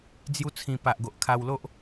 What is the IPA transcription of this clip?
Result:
d͡z j u˦ t͡sʰ ĩ˧ p a˨ ʔ ɡ o˨ ʔ kʰ a˧ w l o˦ ʔ

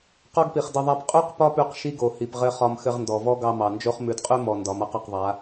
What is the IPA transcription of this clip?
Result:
q ɔ˦ ɡ p i˨ χ d ɘ˧ ðˤ a˦ p qʼ ʉ˦ q p ɒ˦ p ʉ˧ q ʃ i˦ ɡ o˨ h i˨ p ʁ ɘ˧ χ ɒ˧ m x ɘ˧ ʁ n d ɔ˨ v ɔ˦ ɡ ɑ˧ m ɑ˨ n d͡ʒ o˦ χ m ʉ˨ d qʼ ʉ˦ m ɔ˨ n d ɒ˨˦ m a˦ q ɒ˧ q ðˤ a˨˦

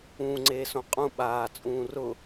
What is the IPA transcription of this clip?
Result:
ũː ŋ͡ǀ eː s õ qʼ ũ ɓ aː t͡sʼ ũː r ʊ

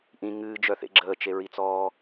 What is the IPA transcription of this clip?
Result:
ʔ ĩ ŋ ɨː d͡ʒ œ θ ḛ ɡ͡ǁ əː t͡ʃ e ɹ i t͡s ɔː

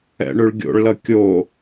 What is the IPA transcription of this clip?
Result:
ɛ̰ ɳ ʉ ɭ ɡʲ o̰ ɭ l ʌ kʲ o

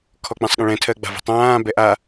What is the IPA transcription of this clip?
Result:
kʰ ɔ k͡p ɛ̃ sˤ ɠ ə̃ ɭ ɛ̃ tʰ ɜ ɡ͡b a̤ v ə̤ tˤ ãː b ɛ ʔ a

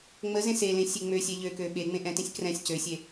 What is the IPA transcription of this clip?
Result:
ŋ͡m ə z ẽ s e l ẽ sʲ e ŋ͡m ø sʲ ɛ ʎ ø k ø ɓ e ŋ͡m ẽ ʔ ɛ̃ t ẽ sʲ k r ɛ̃ sʲ c ø sʲ e

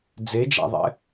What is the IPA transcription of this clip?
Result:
d͡z e d͡ʒ a̰ ðˤ ɛ̰

